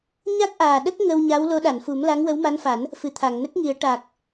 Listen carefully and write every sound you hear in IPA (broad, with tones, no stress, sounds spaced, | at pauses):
ɲ a˦˥ k̚ ʔ aː˨˩ ɗ ə˦˥ k̚ ŋ ə˧ w ɲ a˧˥ w l o˧˥ ɗ a˨˩˨ n f u˨˩˦ m l a˧˥ ŋ w ə˧˥ w m a˧˥ n f a˨˩˦ n | f ɨ˨˩ t̪ʰ a˨˩˨ ŋ n ə˦˥ k̚ ŋ i˨˩˦ ə̯ ʈ a˨˩ k̚